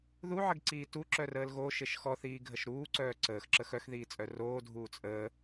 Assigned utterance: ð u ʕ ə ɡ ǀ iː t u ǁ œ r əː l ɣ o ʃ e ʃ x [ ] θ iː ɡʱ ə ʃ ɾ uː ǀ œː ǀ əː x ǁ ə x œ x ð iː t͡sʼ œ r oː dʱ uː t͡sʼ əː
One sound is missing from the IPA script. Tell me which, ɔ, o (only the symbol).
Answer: ɔ